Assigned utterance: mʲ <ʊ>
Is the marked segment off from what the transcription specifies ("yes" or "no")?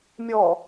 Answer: yes